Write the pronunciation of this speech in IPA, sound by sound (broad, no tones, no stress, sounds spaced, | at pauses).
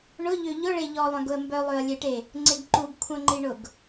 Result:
ɳ ʊ ʎ ø ʎ ʊ ɭ e ʎ ɔ lˠ œ̃ ɡ ʊ ə̯ m b œ lˠ ø ə̯ lʲ e ʈ e | ŋ͡ǀ ɪ ɡ ǃ u ɡ kʷʰ œ̃ ŋ͡ǃ i ɳ ʊ ɡ